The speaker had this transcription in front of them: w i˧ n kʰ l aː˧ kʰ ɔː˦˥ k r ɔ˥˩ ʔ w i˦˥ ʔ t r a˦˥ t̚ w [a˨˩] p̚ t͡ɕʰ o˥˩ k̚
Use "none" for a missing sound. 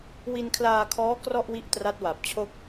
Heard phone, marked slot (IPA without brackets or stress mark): a˨˩